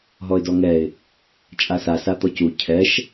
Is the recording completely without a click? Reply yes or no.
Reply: yes